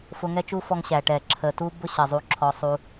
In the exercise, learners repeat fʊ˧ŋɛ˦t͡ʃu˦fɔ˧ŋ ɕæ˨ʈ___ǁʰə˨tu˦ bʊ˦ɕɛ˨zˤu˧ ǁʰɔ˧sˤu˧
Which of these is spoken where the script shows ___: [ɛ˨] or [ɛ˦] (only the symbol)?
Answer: ɛ˨